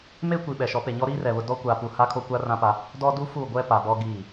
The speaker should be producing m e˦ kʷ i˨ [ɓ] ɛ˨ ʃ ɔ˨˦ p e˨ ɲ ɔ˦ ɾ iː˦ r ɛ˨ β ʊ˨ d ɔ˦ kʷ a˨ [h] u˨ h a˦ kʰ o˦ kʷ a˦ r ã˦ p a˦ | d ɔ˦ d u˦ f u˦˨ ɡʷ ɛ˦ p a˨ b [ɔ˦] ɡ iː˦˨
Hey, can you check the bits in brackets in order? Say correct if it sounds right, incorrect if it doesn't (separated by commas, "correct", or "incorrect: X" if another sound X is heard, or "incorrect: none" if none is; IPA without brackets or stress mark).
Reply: correct, incorrect: p, correct